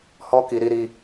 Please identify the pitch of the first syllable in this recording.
high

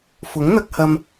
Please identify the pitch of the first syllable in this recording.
rising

